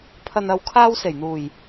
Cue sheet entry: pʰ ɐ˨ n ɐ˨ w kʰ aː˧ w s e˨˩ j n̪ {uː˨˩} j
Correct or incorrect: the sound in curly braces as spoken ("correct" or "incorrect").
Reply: correct